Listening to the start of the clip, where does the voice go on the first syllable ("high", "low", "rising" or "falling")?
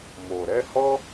low